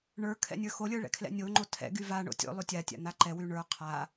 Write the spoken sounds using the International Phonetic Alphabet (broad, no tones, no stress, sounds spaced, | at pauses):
ɳ ə˞ kʰ ɛ̰ nʲ ə˞ x o lʲ ə˞ ɭ ɛ̰ kʰ l ɛ̰ nʲ o ŋ͡ǃ o tʰ ɛ̰ ɡ y v a ɳ o̰ tʲ o̰ lˠ y tʲ a tʲ a̰ n̪ a ǃ ɛ w y ɳ ə˞ qʰ a